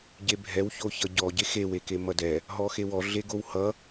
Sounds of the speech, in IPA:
ɟ e bʱ ɛ w ç o ç ʌ ɟ ɔ ɟ e x e w e k e m ʌ d ɛ | ɦ ɔ x e w ɔ ɮ e ɡ o w h ʌ

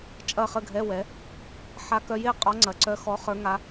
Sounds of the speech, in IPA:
t͡ʃʼ ɐ˥˨ χ ə˥˨ ɡʱ ɛ˧˥˧ w ɛ˩˥ | ħ a˧˥ k œ˧˥ j e˥˨ qʼ ɔ˧˥ ŋ͡ǀ ɐ˩˥ ǀ œ˧˥ x ɔ˧˥ χ ə˞˧˥ ŋ a˧˥

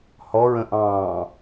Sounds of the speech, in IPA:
h ɔ ɹ ə̃ ʔ ɑ̃ː

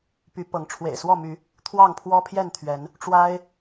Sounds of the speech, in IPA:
p y˨˦ p ɤ˨˦ ŋ ʈ͡ʂʰ w ḛ˨˩ ɪ̯ s w ɔ˥˨ m y˨˦ | t̪ʰ w ɑ˥˨ ŋ pʰ w ɔ˦ pʰ j ɛ˥˨ n t̪ʰ ɥ ɛ˨˦ n | ʈ͡ʂ w a˦ ɪ̯

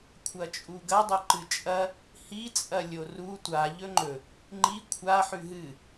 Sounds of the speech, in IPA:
kʷʰ ɐ t͡ʃʼ u ɡ ɐ dˤ ɵ ǃ ɨ t͡ʃʼ ɐ | h i t͡sʼ ɐ lʲ o r u tʷ a ʎ ɵ ŋ͡ǃ ɵ | ŋ͡ǃ i kʷʰ a ħ ʉ ɦ ɨ

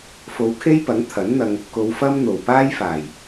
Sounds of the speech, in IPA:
f o˨˧ w kʰ e˥ j p ɐ˨˥ ŋ t̪ʰ ɐ˨˥ n n̪ ɐ˧ ŋ | k o˨˧ w f ɐ˥ m n̪ o˨˩ w p aː˥ j f aː˨˩ j

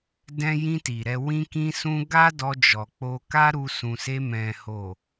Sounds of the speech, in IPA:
d ɛ̃˧ j ĩ˧ t i˨ ɾ ɛ˧ w ĩ˧ k ĩ˧ s ũ˧ ɡ a˦ d ɔ˧ d͡ʒ ɔ˨ k͡p o˧ k a˦ ɾ u˧ s ũ˨ s e˧ m ɛ̃˨ h o˨

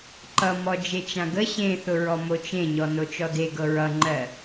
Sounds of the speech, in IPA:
ǃ ʌ m ɔ d͡ʒ e t͡ʃ ã ɡ ə ɕ ẽ θ ʊ ɹ ɔ m o t͡ʃ ẽ ɲ ɔ n o t͡ʃ ɔ d e ɡ ɤ ɹ ʌ ŋ͡ǃ ɜ

